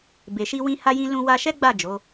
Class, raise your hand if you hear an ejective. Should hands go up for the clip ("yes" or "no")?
no